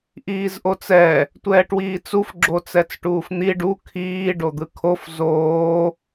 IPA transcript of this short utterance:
ʔ iː z ʔ o t͡s ɛ | tʷ ɛː ʈ w iː t͡s u f ɡ͡ǁ o t͡s ɛ t͡s ʈ uː f n̪ i ɖ u kʰ iː ɖ o d̪ ɯ kʰ o f z oː

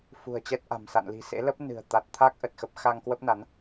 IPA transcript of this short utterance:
f ṳ˨˩ ə̯ t͡ɕ ɛ˦˥ t̚ ʔ a̤˨˩ m s a̰˧˨ n l i̤˨˩ s ḛ˧˥ l ə˦˥ p̚ n ɨ̤˨˩ ə̯ t̪ a˨˩ t̚ t̪ʰ a˦˥ k̚ ʔ ə˨˩ t̚ x ə˦˥ p̚ x a˧ ŋ k w ə˦˥ p̚ n a˨˦ n

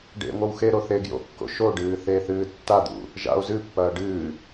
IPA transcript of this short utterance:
ɖ ḛ ŋʷ ɐ w x e ɾ o θ e ɡ j o̰ kː o̰ ʃ o ɖ ɨː θ e θ ɨː tː a d̪ ṵ | ʒ a̰ o̯ z ɨ pː ɐː ɖ ɨː

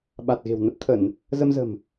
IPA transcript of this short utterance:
ɓ a˨˩ t̚ ɣ e̤˨˩ w n ə˦˥ p̚ t̪ʰ ə˧˩˨ n | z ə˧ m z ə̤˨˩ m

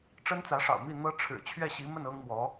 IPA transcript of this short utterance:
ʈ͡ʂ ə˥ n t͡s ä˧˥ ʂ ɑ̰˨˩ ʊ̯ m i˥˩ n̪ ɤ˥ ʈ͡ʂʰ ɻ̩˨˩ t͡ɕʰ ɥ ɛ˥˩ ɕ i˧˥ m ə˥˩ n ɤ˥ ŋ m w ɔ˧˥

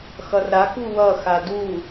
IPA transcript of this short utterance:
x ʌ r ɾ a k u w ʌ x a d u

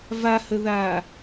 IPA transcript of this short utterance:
v a h ə ð aː

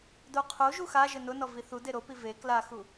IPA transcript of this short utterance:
d o qʰ o ʒ u x a ʒ ɘ n ʊ n ɔ v i θ u d e ɾ o p i v e k l a x u

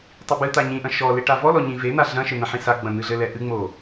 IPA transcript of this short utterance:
tˤ i b ɨ t̪ a ɲ ĩ ʔ ɐ̃ ʃ ɔ l e ʈ a v ɔ l ɔ ɲ ĩ v e n̪ a ɮ ɐ̃ ʃ ɘ n̪ ɐ̃ ħ ĩ s a ɡ͡b ɐ̃ n̪ ɨ ɮ ɘ l ɛ ʔ ɨ ŋ͡m o

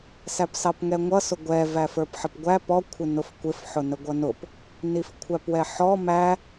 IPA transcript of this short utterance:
s æ p s ɑ p ŋ ɛ ŋʷ ʌ s ʊ ɡʷ ɛ v æ f ə˞ p ħ ə p ɡʷ æ p ɔ kʷʰ ɪ n ʊ f kʷ ɪ f ħ ʊ n ə ɡʷ ʌ n ʊ p | n i f kʷʰ æ p w ɛ ħ ɔ m æ

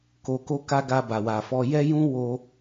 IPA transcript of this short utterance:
k o˧ k o˦ k a˦ ɡ a˧ b a˨ w a˨ f ɔ˧ j ɛ˦ j ũ˦ w o˧

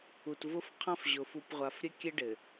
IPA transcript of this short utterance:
u˨ t v ʊ˦ f qʰ ã˦ f ʑ ʊ˨ f u˨ p ʁʷ a˨ f ɾʲ ɘ˦ kʲ ɘ˦ ɖ ɘ˨

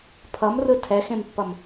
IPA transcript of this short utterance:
pʰ ʌ m r ɯ tʰ ɛ x ẽ m pː ʌ m

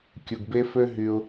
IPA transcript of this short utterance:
kʲ u˨ ɡ b e˧ f ø˧ ɦ y˧ ʊ̯

